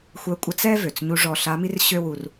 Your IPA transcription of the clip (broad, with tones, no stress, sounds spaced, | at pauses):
xʷ œ˧˥ kʷʼ ə˧˥ t͡s ɛ˥ v ø˩ t͡s ɲ u˧ ʐ ɔ˧ ɬ a˧˥ m i˥ r ɕ ø˥ w u˧ r